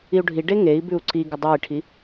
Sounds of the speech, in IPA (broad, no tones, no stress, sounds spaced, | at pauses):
i u̯ ɖʱ i ɖ e ŋ e i̯ b ʉ u̯ ǀ i ɡ ə dˤ a i̯ ʈʰ i